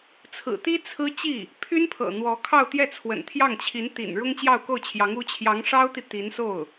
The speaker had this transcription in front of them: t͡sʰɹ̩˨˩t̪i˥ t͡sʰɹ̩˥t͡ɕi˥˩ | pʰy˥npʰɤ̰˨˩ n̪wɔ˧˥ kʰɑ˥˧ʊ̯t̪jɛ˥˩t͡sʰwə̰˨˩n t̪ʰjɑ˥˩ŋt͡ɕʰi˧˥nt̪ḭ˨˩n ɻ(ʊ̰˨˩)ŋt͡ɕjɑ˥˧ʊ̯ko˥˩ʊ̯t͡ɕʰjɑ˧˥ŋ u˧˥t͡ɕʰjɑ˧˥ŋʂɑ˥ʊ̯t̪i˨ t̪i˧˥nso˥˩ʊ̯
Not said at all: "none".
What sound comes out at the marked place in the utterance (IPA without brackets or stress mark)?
ʊ˥